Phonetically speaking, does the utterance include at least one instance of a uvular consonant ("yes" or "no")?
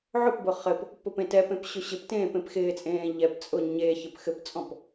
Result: yes